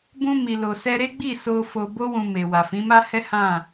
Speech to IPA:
bũ˧mi˨lo˨sɛ˧ ɾe˦ ɡ͡bi˦˨so˧ fo˧bo˦wũ˧me˨ wa˨fĩ˨˦ma˦hɛ˦ hã˦˨

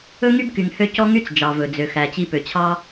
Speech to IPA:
ɵ˥ŋy˥b ky˩ŋhø˧ cɔ˥ŋy˥t͡s d͡ʒɑ˩vɵ˩d͡zø˩ xæ˩t͡ɕi˧pø˩t͡ɕʰɑ˥

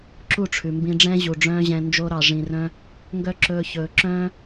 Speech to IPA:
ǁu˦˨ʈ͡ʂʰʉ˨mbĩ˧ɖ͡ʐɛ̃˦ ʑu˨ɖ͡ʐœ̃ː˦ʑɛ̃˧ nd͡ʒo˧ɾɑ˨ʐĩ˨rœ̃˧ | ŋɡœ˦ǁɵː˧çɵː˨ǁœ̃ː˦

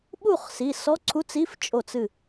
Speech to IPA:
ɓu˥˩χsi˩˧˩ sɔ˧˥˧ǀʰu˧˥˧t͡si˧˥˧f t͡ʃʼo˧˩t͡sɨ˧˩

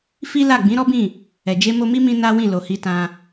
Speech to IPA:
fi˦la˦˨ ɡ͡bĩ˨˦ɾɔ˦bĩ˦˨ | ɛ˨d͡ʒe˧ mo˧mi˦mĩ˧ na˦wĩ˦˨ lo˨hi˧tã˧

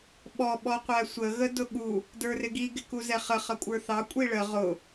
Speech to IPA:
ɓɔ ɓɔqʷæsʷə ɣədʊɠu | də˞rɪɡi ɡɪkuzɛχə χʌkʷʼə˞θɑ kʷʼiɭə ʁʊ

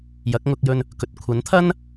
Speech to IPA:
jɐ˨˥k̚ŋʊ˧k̚jɵ˧n | kɵ˨t̚kʷʰɐ˨˥nt̪ʰɐ˥n

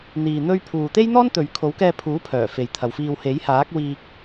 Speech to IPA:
n̪iː˧n̪ɵ˥ɥ pʰuː˧ t̪e˥jn̪ɔː˥nt̪ɵ˨ɥ kʰo˨˥wkɛː˧pʰuː˨˥pʰœː˨˩ fe˨jt̪ʰɐ˨wfiː˧w he˨˥jhaː˨˥k̚wiː˧k̚

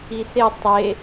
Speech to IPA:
ise tˤe

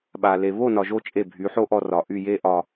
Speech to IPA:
ɓa˨ le˨ βo˦˨nɒ˨ʒo˧ t͡ʃʼe˦˨bʱy˨˦ħo˦ ʔɔ˧rɒ˨ʔy˦˨ je˦ʔɒ˧

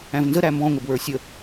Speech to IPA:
æ̃vnzə ɾæmbɔ̃ ŋʷɪbwə˞sʲə

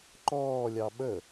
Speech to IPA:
ǃɔːlʲɑ ɓə

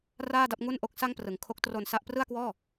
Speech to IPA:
raː˥˩da˥˩p̚ŋu˥˩n ʔo˦˥k̚sa˥˩ŋprɯ˨˩ŋ kʰo˦˥k̚tro˧n sa˥˩ʔ prɯ˥˩a̯kwɔː˥˩

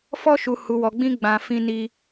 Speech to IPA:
fɔ˦ʃu˧ hu˧wɔ˧ɡ͡bĩ˦ ɡ͡bã˧ fĩ˦ni˦

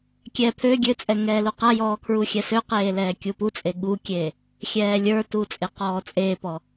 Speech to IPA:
kʲɛ pʰø ɡʲøt͡sʼɛ ŋɛːluqajɔː kʰɹuxʲɛsøqeː lɛːkʲuput͡sʼe ɠukʲe | xʲɛːlʲə˞tu t͡sʼeqɔːt͡sʼeːpɔ

